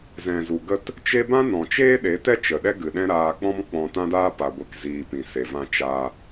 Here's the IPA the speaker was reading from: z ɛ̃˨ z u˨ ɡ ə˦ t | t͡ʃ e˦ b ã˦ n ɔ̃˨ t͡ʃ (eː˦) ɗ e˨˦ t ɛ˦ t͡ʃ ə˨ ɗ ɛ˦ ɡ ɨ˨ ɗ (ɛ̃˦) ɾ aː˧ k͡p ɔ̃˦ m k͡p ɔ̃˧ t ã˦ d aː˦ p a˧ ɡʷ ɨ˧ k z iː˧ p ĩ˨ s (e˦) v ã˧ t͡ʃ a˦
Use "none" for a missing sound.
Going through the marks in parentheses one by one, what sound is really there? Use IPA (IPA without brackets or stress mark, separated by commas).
eː˦, ɛ̃˦, e˨